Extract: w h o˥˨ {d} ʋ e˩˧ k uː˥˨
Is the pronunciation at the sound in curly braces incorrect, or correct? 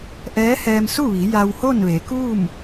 incorrect